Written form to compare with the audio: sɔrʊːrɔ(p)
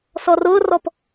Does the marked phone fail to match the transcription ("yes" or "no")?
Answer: no